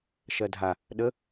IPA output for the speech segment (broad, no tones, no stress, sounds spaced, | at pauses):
ʃ ɜ dʱ a | ɗ ə